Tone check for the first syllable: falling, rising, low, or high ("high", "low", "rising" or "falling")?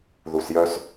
low